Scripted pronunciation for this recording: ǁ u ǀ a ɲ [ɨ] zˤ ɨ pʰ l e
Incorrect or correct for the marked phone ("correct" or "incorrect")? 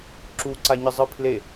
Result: correct